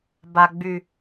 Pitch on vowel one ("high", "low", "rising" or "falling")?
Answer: low